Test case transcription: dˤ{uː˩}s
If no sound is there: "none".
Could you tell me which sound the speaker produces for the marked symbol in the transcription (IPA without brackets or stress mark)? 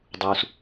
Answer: uː˩